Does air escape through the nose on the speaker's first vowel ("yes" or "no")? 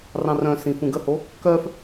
yes